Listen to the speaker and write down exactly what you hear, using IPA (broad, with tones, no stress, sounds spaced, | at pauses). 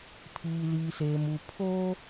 pʰ iː˨ l iː˨ s eː˨ m u˨ pʰ oː˦